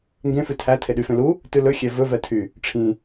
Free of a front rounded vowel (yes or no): no